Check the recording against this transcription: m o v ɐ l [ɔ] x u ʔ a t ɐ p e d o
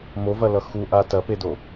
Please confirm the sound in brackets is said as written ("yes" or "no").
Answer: no